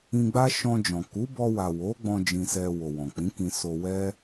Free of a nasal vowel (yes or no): no